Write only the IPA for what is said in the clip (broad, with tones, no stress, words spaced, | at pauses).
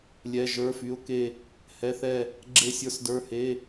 lʲɛ˧˥˧ʒə˞˧˥˧fy˧˥˧ʊ̯ke˥˧ | hɛ˧˥˧θɛ˥˧ | ɡ͡ǁe˥˧sʲə˞˥˧sdə˞˧˥˧he˧˥˧